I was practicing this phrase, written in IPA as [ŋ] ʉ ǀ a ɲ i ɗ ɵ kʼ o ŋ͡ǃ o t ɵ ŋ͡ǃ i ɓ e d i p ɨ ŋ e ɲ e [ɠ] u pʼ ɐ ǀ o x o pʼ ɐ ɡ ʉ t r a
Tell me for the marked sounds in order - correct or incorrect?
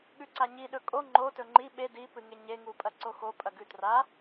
incorrect, incorrect

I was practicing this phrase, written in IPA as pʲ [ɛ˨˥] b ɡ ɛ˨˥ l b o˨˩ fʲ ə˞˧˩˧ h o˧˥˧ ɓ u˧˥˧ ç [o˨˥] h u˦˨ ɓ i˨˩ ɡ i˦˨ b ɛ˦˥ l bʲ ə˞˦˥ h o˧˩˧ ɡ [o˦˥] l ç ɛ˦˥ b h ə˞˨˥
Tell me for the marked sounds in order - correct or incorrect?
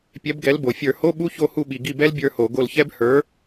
correct, incorrect, incorrect

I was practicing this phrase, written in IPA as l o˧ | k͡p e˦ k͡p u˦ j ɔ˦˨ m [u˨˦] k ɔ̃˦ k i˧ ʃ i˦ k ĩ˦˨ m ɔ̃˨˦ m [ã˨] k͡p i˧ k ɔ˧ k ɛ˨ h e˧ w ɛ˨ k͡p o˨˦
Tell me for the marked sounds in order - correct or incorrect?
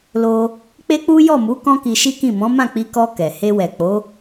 correct, incorrect

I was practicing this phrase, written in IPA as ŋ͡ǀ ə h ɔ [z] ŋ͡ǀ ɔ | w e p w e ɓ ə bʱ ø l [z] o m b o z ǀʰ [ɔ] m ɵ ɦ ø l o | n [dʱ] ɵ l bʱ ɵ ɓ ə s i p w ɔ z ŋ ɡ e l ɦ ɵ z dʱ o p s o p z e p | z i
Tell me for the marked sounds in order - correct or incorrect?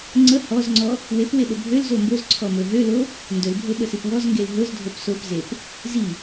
correct, correct, correct, incorrect

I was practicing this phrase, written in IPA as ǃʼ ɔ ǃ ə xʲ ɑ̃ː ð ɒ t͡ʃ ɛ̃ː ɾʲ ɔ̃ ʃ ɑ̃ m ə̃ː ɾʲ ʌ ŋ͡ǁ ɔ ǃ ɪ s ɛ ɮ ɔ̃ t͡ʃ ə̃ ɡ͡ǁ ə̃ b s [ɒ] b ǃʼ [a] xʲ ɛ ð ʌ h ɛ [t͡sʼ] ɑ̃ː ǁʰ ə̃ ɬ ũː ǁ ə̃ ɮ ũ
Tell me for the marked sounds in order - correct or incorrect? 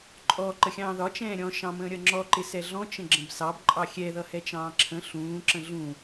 incorrect, incorrect, incorrect

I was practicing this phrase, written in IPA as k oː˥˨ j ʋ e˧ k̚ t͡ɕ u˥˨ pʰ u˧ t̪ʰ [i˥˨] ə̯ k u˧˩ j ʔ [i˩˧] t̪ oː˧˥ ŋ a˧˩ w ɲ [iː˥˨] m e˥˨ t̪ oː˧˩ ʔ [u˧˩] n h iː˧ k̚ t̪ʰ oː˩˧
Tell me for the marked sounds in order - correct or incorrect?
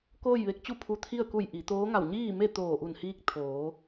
correct, correct, correct, correct

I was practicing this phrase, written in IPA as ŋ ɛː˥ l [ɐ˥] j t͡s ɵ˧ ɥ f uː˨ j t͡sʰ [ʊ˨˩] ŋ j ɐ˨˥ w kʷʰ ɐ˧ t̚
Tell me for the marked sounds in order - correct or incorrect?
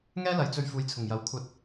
incorrect, correct

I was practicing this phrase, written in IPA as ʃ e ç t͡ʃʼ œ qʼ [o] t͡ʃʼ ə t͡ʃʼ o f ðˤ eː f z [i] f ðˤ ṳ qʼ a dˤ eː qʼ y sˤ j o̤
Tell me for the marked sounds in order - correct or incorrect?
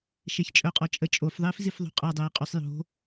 incorrect, correct

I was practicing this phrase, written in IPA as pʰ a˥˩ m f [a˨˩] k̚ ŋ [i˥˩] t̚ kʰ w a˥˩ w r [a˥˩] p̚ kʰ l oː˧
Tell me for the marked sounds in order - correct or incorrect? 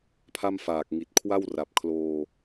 incorrect, incorrect, incorrect

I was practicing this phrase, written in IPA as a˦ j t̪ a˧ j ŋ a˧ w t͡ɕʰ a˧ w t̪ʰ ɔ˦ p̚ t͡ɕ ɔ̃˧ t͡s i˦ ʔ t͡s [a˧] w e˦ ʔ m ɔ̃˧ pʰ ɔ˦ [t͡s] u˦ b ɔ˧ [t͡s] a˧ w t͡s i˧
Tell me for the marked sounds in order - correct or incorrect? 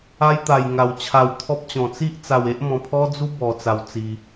correct, incorrect, correct

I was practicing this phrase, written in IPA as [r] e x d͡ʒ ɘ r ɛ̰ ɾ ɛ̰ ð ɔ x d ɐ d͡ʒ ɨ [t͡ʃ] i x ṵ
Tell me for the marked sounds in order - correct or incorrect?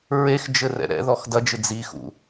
incorrect, incorrect

